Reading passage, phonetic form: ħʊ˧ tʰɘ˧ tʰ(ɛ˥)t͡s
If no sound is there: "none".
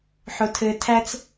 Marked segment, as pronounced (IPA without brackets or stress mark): æ˥